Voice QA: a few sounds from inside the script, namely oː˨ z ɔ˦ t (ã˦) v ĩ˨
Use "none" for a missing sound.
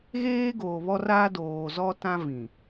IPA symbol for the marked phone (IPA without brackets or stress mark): ã˦